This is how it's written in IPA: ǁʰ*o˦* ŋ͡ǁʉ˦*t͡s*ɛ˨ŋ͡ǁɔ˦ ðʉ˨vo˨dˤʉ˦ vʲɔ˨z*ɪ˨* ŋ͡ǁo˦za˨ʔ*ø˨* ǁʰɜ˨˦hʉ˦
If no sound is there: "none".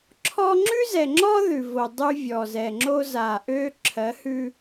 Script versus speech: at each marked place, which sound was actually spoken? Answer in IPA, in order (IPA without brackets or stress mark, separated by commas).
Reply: ɔ˦, z, ɛ˨, ø˦